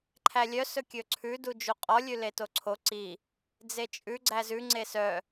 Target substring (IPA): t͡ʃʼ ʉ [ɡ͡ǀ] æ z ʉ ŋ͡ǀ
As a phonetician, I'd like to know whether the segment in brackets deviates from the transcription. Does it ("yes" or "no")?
no